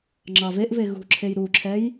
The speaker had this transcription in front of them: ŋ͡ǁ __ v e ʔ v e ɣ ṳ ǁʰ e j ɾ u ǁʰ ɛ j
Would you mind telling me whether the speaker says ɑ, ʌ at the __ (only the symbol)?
ɑ